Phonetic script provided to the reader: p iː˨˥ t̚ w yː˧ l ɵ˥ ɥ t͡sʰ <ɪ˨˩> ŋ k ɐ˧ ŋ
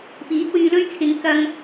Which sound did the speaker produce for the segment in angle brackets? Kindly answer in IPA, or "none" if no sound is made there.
ɪ˨˧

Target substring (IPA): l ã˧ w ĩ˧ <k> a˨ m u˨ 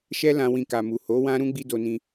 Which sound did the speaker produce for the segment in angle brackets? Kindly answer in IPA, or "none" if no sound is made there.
k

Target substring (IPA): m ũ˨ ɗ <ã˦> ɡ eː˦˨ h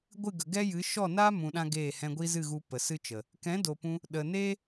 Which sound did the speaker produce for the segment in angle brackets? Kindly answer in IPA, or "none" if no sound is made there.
ã˦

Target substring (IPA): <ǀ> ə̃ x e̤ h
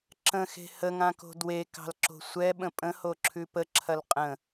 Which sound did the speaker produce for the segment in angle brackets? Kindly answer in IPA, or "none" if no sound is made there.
ǁ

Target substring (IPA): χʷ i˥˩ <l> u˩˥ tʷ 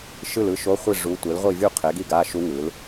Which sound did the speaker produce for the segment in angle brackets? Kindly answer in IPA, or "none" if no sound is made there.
ʐ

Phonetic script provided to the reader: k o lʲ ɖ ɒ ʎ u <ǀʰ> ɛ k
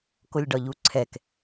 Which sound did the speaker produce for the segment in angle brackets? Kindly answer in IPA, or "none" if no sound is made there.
ǀʰ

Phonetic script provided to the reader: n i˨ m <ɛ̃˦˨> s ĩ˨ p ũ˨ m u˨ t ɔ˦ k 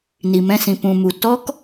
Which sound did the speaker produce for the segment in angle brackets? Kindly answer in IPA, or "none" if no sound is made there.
ɛ̃˦˨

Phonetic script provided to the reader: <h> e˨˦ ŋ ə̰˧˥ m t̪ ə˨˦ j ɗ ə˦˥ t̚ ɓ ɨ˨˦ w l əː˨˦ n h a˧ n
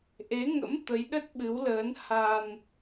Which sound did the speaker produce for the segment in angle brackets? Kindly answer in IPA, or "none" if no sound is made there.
ʔ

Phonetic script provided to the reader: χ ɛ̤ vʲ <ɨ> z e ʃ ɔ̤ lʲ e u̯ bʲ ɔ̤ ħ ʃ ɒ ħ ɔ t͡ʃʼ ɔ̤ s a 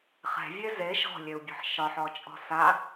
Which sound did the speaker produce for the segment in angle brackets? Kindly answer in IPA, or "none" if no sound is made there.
e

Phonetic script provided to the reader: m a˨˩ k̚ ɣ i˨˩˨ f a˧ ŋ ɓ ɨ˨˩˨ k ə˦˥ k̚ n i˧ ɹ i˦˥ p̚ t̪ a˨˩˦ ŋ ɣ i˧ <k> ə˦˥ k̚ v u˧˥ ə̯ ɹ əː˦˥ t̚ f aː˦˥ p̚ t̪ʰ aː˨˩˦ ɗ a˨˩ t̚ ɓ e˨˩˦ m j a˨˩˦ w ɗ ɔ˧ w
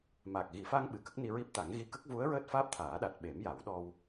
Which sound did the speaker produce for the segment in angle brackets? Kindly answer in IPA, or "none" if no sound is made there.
k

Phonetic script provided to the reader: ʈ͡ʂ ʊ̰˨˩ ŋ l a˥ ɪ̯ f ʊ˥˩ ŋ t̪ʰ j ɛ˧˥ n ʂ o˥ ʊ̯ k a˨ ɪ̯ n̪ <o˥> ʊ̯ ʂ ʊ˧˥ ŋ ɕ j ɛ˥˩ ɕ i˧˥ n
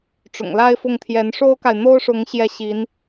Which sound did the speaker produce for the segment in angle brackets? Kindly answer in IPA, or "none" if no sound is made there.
o˥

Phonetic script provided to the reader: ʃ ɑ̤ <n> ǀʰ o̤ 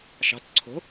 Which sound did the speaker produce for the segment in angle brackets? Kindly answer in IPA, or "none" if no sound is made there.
t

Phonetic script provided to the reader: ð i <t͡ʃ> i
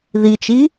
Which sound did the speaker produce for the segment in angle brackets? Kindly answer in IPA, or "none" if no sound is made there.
t͡ʃ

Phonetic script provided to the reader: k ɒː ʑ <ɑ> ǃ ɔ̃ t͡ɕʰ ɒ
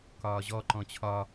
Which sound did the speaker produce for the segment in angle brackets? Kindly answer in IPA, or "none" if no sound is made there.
ɔ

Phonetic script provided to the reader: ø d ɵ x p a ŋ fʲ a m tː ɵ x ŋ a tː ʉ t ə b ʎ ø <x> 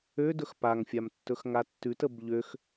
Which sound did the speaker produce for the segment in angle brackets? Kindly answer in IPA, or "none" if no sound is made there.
x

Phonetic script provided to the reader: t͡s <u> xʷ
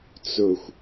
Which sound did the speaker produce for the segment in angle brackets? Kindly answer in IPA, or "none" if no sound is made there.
ʊ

